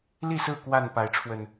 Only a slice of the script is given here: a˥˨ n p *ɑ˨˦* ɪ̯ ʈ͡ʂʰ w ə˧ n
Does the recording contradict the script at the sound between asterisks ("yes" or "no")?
yes